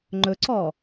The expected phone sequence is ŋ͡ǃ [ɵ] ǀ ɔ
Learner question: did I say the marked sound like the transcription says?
yes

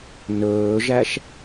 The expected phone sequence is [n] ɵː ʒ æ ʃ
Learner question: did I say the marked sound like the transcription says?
yes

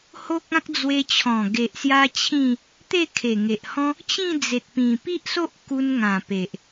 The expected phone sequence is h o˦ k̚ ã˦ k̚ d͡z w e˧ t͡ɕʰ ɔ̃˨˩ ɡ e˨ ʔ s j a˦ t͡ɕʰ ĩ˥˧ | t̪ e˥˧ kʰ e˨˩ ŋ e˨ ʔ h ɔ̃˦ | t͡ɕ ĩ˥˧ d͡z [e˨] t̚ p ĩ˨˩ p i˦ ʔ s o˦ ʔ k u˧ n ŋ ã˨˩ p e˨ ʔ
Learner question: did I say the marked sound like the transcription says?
yes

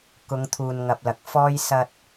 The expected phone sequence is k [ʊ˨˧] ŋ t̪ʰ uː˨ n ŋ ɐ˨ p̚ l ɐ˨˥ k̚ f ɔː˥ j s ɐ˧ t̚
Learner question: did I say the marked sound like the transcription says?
yes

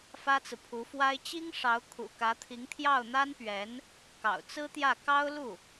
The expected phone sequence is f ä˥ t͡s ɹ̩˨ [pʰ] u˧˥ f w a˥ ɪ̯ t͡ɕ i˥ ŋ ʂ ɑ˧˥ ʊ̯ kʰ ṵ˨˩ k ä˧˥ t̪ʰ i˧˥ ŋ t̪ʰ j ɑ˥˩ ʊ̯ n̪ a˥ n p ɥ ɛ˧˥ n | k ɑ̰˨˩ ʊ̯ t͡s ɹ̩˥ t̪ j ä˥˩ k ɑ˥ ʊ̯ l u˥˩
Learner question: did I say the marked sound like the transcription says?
yes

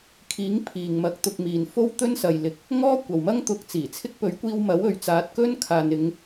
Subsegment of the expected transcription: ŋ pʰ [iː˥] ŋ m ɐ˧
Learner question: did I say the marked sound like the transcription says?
no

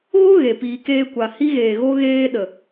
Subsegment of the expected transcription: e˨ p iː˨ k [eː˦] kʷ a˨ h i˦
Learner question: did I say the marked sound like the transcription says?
no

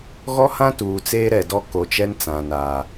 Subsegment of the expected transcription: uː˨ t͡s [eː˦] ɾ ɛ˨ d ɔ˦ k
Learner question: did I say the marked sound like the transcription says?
yes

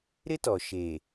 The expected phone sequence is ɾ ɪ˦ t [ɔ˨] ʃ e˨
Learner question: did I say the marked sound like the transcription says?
yes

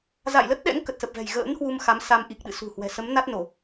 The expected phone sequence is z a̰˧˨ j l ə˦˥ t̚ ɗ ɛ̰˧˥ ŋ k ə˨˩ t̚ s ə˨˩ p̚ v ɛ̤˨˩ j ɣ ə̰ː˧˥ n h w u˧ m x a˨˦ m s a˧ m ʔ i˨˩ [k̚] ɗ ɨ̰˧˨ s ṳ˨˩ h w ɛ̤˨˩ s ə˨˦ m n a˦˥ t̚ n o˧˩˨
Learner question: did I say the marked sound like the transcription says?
yes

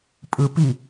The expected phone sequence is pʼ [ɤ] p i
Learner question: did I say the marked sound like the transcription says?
no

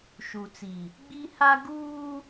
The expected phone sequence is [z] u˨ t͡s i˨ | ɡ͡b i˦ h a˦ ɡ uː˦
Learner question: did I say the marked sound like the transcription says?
no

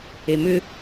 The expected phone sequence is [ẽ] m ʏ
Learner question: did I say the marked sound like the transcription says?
no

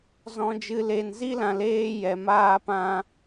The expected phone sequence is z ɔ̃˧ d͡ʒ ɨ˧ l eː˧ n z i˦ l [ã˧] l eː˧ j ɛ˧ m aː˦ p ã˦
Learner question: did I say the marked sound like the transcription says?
yes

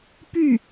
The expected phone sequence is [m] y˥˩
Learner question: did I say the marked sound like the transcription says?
no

